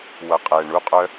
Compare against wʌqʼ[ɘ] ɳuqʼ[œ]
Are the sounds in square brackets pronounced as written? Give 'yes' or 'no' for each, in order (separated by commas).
no, yes